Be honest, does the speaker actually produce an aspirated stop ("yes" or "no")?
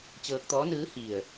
no